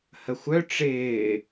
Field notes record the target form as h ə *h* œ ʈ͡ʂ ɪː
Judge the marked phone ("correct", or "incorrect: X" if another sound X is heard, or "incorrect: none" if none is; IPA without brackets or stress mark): incorrect: xʷ